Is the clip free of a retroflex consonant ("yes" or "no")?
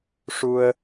no